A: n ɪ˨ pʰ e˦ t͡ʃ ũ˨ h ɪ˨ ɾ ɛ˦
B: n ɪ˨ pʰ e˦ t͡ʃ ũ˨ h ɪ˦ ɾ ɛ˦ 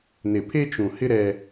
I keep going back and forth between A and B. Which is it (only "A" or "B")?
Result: B